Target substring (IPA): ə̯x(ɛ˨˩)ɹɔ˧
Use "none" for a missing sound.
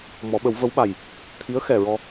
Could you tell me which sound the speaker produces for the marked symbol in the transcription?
ɛ˨˩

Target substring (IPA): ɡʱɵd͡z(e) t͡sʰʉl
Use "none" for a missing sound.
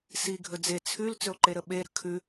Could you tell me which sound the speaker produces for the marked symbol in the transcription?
e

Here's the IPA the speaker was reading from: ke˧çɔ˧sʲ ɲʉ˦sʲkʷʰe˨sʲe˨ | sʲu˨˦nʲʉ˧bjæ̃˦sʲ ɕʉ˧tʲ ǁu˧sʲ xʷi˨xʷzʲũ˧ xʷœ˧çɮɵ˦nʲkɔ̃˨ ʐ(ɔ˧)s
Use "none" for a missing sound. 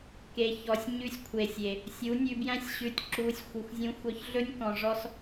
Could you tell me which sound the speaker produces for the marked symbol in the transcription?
ɔ˧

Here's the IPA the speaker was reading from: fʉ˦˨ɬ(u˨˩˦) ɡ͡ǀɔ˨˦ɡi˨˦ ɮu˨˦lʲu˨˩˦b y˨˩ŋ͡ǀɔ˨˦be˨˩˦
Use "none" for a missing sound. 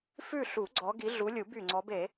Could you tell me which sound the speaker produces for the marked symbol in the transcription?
u˨˩˦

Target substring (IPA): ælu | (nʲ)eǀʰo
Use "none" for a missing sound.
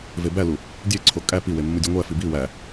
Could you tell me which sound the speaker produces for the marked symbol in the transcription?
dʲ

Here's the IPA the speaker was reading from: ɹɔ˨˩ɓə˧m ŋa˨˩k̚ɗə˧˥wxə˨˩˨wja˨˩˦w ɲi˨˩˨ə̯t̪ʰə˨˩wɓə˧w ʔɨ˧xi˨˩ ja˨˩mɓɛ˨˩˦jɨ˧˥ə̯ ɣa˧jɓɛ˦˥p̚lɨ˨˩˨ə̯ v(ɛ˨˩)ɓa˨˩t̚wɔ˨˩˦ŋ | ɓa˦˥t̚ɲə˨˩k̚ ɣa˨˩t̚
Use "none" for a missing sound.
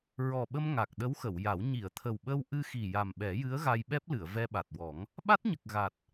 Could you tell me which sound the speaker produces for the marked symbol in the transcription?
ɛ˧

